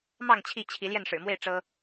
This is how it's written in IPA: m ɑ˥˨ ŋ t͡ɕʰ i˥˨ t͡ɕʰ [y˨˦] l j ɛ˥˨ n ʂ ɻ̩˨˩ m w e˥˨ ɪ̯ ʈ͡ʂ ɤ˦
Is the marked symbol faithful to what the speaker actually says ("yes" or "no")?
no